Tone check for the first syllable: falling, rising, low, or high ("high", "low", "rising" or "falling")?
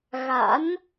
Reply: rising